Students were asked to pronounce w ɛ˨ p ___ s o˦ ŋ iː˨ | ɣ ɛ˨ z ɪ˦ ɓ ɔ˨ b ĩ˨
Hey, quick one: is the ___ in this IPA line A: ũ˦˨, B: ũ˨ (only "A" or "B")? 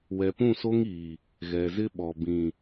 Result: A